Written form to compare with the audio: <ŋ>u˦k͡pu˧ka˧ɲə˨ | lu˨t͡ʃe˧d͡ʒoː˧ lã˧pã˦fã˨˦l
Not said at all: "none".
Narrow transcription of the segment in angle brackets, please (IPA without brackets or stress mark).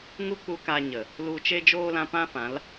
ŋ